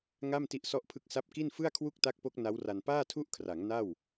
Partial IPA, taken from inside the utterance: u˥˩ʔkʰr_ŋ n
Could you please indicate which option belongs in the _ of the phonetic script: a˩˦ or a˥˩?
a˩˦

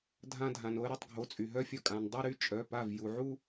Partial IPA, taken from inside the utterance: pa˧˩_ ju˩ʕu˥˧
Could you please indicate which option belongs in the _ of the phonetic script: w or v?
v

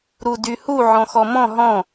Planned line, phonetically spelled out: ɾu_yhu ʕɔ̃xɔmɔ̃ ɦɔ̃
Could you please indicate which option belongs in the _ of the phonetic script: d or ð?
d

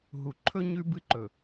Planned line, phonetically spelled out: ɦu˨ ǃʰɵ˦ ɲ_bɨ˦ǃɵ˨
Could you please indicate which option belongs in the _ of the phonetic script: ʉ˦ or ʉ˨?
ʉ˦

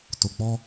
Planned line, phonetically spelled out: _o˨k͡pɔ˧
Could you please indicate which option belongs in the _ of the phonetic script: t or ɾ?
t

